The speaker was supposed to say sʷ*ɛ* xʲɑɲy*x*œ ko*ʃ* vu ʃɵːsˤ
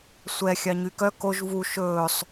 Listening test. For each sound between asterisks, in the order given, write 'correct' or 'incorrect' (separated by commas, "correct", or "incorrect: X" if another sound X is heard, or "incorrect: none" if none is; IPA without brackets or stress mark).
correct, incorrect: k, incorrect: ʒ